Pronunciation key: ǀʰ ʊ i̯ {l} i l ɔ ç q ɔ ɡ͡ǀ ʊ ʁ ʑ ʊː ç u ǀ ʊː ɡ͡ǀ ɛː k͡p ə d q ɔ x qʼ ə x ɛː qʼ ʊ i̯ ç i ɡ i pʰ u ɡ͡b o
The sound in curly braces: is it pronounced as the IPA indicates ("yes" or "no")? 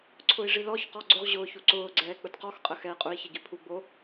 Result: no